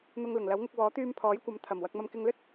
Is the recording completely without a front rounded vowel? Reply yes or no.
no